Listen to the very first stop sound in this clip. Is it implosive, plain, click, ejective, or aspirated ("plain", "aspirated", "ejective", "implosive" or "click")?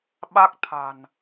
implosive